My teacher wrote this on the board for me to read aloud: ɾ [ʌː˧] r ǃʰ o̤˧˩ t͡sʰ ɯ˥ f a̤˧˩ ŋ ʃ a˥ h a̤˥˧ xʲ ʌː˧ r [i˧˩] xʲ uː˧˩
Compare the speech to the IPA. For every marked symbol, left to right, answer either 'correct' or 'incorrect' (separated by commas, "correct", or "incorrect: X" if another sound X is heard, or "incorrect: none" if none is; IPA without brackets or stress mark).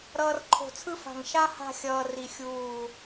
correct, correct